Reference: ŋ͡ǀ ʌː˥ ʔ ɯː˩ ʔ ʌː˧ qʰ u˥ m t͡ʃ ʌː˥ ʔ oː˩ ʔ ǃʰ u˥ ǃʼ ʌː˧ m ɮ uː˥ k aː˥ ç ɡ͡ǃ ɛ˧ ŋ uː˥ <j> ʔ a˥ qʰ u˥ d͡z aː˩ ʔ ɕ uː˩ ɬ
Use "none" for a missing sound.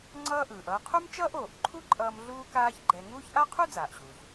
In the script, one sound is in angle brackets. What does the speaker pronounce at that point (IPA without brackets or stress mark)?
ç